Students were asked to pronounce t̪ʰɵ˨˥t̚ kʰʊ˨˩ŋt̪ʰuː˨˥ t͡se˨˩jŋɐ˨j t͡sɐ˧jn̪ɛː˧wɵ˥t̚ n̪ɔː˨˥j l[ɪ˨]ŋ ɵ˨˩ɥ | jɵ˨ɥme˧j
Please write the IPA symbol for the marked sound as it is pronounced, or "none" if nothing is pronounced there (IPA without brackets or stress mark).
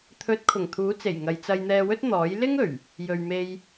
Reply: ɪ˥